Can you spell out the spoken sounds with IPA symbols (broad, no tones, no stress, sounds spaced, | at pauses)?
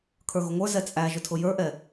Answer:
kʰ ə˞ ɣ ʊ ŋʷ ə˞ z ɛ t͡sʼ æ ʒ ʊ tʰ ʊ j ə˞ ʔ ɛ